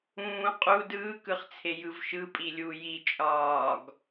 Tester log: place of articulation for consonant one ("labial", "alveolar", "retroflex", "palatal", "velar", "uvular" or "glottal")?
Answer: uvular